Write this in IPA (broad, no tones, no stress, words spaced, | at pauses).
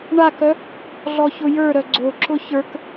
ɳakœ | ɮɔçʊjə˞ɾœ ɡ͡ǀoǁʊ çə˞k